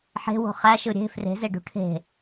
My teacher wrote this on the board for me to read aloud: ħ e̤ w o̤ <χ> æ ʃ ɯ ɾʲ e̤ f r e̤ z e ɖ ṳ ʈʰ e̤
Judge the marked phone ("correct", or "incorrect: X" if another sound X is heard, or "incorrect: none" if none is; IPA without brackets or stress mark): correct